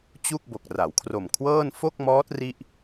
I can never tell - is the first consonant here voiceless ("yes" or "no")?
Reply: yes